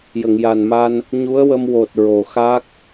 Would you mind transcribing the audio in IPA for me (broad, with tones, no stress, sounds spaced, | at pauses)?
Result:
j ə˨˩˨ ŋ j a˨˩ n m a˧ n | ɲ u˧˥ ə̯ w ə˧ m w o˨˩ t̚ ɹ o˨˩ x a˦˥ k̚